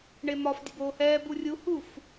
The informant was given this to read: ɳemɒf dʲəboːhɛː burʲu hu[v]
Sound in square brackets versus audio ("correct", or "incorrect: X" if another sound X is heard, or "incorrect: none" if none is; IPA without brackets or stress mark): incorrect: f